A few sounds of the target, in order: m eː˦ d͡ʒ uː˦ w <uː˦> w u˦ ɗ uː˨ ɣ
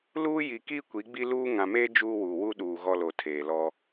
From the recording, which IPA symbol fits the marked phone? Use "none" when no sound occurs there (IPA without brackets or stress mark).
uː˨